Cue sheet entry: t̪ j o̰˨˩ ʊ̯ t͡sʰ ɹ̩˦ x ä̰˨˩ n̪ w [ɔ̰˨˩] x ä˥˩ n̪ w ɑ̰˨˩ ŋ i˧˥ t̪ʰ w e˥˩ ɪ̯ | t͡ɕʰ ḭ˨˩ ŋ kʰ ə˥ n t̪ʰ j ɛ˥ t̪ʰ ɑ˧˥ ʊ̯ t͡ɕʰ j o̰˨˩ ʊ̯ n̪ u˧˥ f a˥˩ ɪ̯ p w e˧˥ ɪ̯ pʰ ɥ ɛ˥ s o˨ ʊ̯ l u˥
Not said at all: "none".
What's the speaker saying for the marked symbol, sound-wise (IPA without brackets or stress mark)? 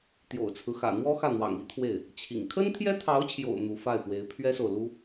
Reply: ɔ˥